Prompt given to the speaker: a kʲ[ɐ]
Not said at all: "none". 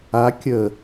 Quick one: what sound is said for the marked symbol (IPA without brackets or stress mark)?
ə